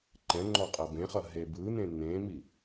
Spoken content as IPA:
ǃ ɛ̃ ŋ͡ǃ ɔ qʼ ʌ b ẽ χ ʌ ɦ e b ɯ n̪ ẽ n̪ ẽ m i

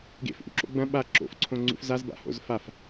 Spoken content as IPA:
ɡ ḛ f ʔ ṵ ǁ o̰ ɡ͡b ɐ̃ ɓ a ǁ o̰ f ǀʰ õ ŋ͡ǀ ṵ f z a z b a̰ h o̰ z f a f

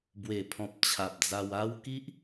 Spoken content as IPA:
b w e˨˩ pʰ ɔ̃˨ p̚ t͡ɕʰ a˨ p̚ d͡z a˧ w a˦ w k i˦ ʔ

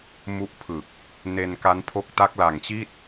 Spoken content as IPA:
m u˦˥ ʔ pʰ ɯ˨˩ k̚ | n e˧ n k a˦˥ n pʰ o˦˥ k̚ t a˦˥ k̚ l a˨˩ ŋ t͡ɕ i˥˩ t̚

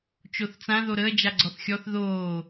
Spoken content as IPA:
t͡ʃ o θ t͡s ã ð o ɾ əː d͡ʒ a ɡ͡ǀ ɔ θ xʲ ɔ θ ð oː

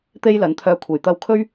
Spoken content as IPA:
t̪ e˥ j l ɐ˨˥ n t̪ʰ œː˧ kʷʰ e˨˩ j t̪ ɐ˧ w kʰ ɵ˥ ɥ

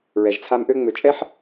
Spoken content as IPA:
ɹ ɛ˨ ʒ t͡sʰ a˦ m ʔ ø˦ ŋ͡m ø˨ t͡ʃʼ ɛ˦ ħ

